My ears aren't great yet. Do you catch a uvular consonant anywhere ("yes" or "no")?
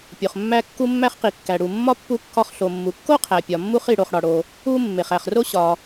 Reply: yes